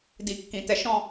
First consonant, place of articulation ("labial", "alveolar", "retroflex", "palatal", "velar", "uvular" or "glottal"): alveolar